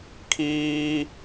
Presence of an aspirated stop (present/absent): present